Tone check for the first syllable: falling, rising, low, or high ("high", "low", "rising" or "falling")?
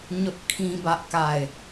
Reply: high